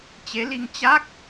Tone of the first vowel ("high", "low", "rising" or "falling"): rising